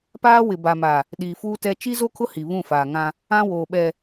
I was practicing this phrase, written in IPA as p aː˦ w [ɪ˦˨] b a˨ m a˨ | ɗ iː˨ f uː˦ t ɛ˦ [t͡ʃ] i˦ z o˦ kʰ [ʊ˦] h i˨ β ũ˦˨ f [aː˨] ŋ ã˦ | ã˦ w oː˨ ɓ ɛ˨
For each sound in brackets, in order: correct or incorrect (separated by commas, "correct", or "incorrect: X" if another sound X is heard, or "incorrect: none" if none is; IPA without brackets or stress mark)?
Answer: incorrect: ɪ˨, correct, correct, correct